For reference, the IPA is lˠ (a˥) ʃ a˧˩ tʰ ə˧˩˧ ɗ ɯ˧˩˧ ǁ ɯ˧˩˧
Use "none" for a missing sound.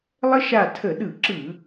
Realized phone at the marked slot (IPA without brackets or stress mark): ə˥